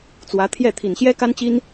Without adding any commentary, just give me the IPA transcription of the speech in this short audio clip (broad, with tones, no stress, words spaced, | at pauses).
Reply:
t͡swä˧˥t̪ʰjɛ˥˩ t̪ʰi˨˩nɕjɛ˥ka˥nt͡ɕi˥n